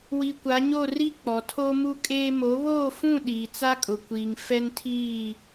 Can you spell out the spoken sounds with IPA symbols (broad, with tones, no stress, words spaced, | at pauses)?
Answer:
wi˨kʷa˨˦ɲo˦˨ ri˦ k͡pɔ˨tʰo˦mu˦kʼeː˦ mo˨˦βoː˦˨fũ˦˨ ɗiː˨t͡sa˦kʼʊ˨kʷiː˨ŋ fɛ˦ntʰiː˦˨